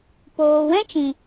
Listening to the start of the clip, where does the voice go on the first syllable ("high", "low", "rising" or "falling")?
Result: low